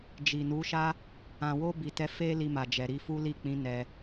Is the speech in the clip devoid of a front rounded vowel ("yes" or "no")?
yes